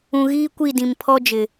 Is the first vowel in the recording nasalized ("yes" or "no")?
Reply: yes